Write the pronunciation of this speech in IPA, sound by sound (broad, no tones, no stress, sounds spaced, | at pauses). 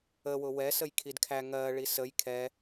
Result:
ə w ʊ w ɛ s ə j kʰ i d kʰ æ ŋ ɜ ɭ i s ə j kʰ ɛ